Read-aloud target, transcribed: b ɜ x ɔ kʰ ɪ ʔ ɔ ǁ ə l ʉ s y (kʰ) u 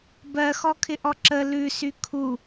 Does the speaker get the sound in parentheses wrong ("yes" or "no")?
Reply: no